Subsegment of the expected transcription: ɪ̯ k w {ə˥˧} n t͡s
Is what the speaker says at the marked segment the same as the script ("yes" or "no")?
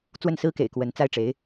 no